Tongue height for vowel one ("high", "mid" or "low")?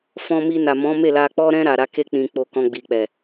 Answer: mid